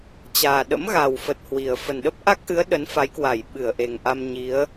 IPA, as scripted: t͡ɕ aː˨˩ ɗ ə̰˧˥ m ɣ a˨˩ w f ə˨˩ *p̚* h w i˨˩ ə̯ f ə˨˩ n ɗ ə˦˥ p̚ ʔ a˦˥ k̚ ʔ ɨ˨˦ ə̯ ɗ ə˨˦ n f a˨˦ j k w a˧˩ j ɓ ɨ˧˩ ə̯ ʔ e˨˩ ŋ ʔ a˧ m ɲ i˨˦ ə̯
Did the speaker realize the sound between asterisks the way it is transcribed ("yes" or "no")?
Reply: no